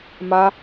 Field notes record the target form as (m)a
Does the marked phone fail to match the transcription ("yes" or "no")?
no